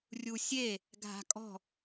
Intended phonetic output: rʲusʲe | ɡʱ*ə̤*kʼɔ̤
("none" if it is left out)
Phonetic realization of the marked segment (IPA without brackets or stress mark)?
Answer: a̤